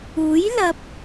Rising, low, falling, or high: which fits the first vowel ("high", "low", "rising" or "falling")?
rising